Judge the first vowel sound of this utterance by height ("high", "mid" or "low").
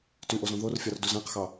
high